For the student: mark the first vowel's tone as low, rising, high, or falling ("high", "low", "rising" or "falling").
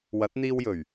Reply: rising